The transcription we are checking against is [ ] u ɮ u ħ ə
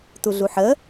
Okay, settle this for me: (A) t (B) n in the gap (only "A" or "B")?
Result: A